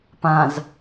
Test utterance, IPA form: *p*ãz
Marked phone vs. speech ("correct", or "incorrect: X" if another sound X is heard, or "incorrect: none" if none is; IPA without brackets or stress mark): correct